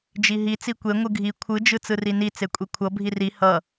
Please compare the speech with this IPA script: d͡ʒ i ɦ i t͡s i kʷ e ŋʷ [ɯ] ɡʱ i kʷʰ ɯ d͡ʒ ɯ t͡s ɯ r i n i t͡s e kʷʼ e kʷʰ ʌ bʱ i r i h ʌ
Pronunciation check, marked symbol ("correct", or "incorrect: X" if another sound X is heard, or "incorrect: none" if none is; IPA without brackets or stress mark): correct